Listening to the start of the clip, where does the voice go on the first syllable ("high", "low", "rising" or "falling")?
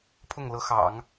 falling